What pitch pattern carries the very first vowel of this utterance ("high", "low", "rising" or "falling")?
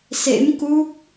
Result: rising